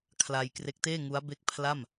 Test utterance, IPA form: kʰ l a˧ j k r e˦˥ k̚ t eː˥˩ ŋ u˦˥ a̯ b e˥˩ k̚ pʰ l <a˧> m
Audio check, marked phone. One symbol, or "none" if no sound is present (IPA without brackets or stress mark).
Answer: a˥˩